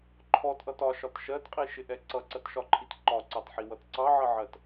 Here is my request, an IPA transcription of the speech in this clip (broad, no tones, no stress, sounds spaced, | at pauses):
ǃʰ ɔ t ʔ ʌ t ɒ ʃ ɒ t ʃ ɜ t qʼ i ʃ ɪ ʔ ɛ ǀ ʌ ǀ ɜ t ʃ ɒ ǃʰ i t ǃ ɒ ǀ ɑ t ħ i w ʌ t ǀ ɑ ʕ ʌ ʕ ɜ t